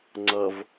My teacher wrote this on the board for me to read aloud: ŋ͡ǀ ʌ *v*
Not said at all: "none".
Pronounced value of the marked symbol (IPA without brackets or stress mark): v